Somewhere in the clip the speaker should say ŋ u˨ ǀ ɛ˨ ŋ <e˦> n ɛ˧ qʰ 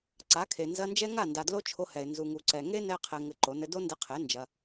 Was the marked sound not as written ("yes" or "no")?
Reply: no